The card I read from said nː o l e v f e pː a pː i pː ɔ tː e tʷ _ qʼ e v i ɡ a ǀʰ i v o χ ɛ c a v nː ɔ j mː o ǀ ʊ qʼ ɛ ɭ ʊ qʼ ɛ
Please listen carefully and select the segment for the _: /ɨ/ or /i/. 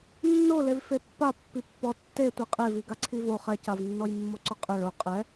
i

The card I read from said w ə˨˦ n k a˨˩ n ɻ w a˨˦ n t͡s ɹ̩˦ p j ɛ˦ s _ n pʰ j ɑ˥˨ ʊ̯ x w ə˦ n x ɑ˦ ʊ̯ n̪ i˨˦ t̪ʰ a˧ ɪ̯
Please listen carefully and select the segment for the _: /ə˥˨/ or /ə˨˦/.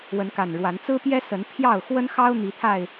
ə˨˦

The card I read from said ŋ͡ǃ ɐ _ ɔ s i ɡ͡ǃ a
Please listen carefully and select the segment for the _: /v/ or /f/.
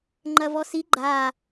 v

